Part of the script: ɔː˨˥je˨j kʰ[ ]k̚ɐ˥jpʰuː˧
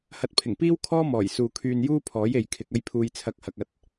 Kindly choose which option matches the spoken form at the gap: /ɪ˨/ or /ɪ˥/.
ɪ˨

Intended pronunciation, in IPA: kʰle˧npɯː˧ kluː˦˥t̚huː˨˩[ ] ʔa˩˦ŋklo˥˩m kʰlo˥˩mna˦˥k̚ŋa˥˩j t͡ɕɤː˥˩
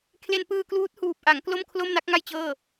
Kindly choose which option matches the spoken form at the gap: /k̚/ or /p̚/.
p̚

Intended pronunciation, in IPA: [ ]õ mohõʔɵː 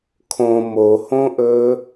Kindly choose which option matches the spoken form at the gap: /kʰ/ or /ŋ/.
kʰ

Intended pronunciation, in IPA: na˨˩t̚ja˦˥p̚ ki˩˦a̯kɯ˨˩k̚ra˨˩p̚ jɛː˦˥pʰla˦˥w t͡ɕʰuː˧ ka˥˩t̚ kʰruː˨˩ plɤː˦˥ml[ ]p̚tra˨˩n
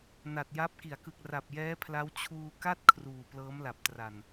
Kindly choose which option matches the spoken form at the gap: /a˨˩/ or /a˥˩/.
a˨˩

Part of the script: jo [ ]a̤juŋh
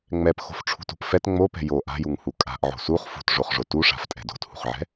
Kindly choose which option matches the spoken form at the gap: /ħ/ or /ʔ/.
ʔ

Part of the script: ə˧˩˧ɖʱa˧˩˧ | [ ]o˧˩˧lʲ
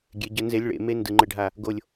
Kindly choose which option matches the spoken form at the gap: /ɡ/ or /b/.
ɡ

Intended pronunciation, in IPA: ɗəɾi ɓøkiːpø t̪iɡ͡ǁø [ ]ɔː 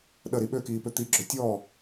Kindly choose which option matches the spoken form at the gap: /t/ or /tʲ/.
tʲ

